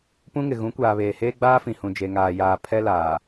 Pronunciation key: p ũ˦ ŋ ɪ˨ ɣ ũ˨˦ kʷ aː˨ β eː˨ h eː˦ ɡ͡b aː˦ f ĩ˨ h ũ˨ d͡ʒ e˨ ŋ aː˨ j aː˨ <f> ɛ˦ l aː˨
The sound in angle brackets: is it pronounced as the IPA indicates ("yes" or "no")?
no